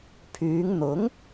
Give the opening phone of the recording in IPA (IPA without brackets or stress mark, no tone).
pʰ